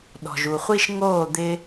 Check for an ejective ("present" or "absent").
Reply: absent